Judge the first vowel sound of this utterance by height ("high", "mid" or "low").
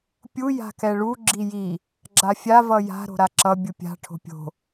high